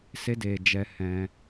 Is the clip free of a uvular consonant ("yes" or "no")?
yes